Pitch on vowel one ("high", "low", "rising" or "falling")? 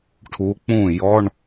rising